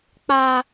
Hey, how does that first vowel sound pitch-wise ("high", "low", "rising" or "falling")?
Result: high